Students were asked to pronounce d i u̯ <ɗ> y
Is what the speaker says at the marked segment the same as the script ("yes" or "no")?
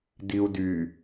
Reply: no